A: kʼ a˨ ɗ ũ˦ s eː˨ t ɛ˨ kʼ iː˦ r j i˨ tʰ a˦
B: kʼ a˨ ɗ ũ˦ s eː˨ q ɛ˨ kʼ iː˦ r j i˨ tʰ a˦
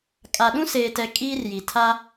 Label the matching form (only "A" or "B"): A